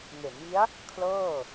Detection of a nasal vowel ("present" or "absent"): absent